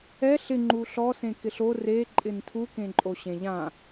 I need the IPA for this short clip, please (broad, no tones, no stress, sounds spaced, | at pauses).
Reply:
ɛ ɬ ɪ ŋ͡ǃ u ɬ ɔ s ẽ k ɪ ɬ o r e ǃʼ ɪ n tʰ u k ẽ ǃʼ o ɕ ẽ ʎ ã